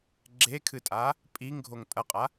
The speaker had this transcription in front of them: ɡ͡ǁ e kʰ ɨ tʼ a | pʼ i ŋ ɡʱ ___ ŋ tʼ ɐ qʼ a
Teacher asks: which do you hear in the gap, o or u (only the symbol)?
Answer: o